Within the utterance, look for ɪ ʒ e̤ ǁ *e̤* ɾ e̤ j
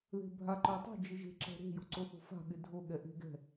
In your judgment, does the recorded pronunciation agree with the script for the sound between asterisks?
no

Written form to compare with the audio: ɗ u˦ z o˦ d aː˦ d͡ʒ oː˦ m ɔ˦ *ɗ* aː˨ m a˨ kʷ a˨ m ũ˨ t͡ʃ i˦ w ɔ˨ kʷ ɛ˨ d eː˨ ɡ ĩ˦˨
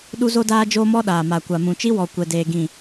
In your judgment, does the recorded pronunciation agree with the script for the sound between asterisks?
yes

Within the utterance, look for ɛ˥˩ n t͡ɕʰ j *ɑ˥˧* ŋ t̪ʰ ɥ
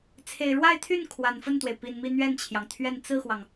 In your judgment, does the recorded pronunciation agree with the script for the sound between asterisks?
no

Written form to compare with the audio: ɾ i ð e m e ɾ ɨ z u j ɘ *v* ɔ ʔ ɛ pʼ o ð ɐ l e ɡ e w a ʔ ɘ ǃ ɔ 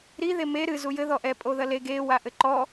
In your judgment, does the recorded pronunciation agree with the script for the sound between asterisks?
no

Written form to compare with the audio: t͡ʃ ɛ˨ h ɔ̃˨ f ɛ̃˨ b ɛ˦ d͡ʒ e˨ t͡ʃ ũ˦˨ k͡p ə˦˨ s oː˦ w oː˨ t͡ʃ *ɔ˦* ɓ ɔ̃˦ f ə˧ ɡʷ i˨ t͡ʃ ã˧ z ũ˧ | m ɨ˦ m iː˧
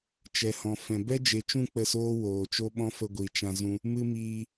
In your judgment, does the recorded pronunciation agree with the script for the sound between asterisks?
no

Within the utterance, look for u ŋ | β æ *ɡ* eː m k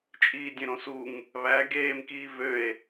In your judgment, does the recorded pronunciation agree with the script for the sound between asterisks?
yes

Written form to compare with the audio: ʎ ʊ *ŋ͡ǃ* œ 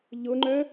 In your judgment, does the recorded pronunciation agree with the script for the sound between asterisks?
yes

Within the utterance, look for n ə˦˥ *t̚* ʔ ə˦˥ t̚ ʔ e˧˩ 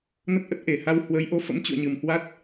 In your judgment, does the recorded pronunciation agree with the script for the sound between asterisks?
yes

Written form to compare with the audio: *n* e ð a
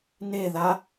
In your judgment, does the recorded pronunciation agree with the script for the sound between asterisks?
yes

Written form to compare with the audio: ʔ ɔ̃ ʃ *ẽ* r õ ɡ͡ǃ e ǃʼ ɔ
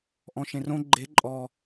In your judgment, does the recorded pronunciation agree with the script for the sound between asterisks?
yes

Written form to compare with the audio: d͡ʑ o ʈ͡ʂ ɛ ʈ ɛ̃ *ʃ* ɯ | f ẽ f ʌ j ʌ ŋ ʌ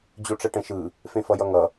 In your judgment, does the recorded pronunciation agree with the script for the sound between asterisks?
yes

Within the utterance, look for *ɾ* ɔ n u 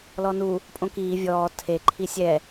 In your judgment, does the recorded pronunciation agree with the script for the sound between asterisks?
no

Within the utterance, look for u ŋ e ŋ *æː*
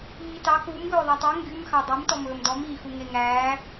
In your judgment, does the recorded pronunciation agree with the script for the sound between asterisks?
yes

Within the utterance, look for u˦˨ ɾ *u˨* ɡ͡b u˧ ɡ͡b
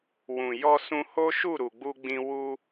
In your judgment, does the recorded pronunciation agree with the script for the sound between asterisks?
yes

